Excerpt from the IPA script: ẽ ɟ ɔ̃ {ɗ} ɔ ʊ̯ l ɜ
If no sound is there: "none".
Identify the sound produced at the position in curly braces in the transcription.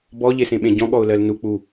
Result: ɠ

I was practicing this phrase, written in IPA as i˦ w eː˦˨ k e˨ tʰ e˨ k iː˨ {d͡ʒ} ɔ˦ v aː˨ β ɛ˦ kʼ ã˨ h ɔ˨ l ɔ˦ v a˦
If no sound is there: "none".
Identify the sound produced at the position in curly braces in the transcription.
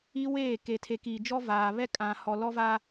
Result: d͡ʒ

